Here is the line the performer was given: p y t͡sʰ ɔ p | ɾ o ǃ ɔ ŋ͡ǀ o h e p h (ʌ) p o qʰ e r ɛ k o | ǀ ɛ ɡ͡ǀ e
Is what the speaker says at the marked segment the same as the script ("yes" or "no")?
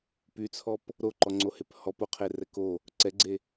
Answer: no